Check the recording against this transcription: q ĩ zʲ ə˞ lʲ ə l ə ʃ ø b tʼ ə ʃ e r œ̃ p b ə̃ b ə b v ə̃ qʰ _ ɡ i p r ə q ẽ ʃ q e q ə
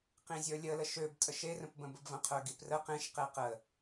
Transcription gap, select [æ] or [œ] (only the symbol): œ